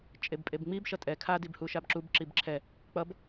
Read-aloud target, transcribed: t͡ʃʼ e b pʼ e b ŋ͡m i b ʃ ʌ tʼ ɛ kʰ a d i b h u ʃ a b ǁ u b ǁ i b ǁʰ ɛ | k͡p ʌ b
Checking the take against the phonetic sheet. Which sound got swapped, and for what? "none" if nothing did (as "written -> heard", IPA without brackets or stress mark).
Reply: none